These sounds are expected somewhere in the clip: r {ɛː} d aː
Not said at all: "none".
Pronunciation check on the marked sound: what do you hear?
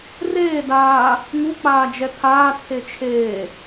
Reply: eː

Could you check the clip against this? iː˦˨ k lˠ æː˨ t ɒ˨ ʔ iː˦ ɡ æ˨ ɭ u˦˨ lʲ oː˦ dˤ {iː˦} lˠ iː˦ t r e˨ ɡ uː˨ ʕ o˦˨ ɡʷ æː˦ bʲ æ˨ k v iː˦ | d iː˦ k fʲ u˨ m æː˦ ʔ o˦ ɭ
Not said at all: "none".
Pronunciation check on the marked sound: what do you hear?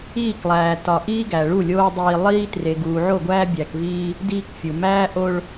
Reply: iː˦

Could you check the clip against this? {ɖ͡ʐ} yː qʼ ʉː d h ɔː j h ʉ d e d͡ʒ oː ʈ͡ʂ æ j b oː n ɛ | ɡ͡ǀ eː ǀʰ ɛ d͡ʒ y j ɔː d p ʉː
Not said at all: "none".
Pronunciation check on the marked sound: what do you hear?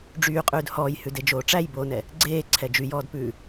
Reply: ɖ͡ʐ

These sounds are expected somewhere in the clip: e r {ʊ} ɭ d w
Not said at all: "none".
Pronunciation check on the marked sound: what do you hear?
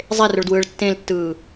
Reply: ʊ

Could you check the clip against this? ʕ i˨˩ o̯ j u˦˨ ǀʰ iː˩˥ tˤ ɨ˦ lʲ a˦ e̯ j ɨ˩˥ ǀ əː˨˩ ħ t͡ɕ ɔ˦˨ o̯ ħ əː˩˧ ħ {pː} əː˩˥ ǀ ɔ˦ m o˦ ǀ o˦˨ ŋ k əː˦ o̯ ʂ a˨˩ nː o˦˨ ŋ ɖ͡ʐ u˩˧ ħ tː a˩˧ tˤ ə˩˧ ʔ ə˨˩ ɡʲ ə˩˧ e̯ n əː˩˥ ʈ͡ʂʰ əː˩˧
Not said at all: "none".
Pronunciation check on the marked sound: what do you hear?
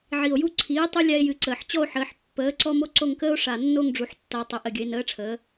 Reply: pː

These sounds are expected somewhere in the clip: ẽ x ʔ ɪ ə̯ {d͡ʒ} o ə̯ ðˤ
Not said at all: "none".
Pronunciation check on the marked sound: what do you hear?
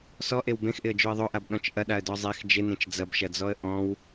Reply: d͡ʒ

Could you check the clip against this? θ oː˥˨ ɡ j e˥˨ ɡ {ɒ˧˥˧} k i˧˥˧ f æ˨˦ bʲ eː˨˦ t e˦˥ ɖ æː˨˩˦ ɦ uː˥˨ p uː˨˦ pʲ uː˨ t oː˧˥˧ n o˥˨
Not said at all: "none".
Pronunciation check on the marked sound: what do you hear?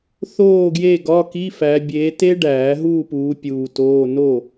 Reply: ɒ˧˥˧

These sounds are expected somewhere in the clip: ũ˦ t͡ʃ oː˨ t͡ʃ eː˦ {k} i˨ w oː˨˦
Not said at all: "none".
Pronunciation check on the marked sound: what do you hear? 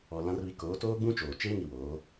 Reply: ŋ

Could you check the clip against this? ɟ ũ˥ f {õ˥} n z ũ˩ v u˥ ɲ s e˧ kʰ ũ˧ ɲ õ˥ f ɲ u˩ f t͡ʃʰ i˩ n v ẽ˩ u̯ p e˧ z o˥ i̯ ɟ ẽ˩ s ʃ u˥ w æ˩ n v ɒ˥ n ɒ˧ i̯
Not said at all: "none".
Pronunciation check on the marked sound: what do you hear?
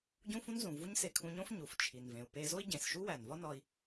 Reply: ũ˥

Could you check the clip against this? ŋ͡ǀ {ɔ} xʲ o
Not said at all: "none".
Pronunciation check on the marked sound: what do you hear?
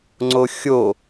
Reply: o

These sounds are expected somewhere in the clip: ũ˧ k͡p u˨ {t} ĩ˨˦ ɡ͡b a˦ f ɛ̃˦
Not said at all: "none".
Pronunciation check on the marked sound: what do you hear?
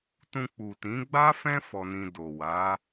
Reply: t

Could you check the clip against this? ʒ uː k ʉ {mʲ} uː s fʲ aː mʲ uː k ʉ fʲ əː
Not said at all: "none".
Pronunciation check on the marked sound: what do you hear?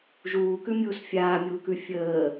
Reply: mʲ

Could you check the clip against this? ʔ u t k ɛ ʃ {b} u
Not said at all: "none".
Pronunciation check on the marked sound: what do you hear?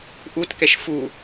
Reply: f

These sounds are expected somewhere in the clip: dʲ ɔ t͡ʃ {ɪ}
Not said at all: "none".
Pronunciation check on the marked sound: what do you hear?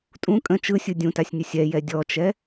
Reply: ɛ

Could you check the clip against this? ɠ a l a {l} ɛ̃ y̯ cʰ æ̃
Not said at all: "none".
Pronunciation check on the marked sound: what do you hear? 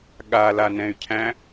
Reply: n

